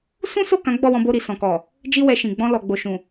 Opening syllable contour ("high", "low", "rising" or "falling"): high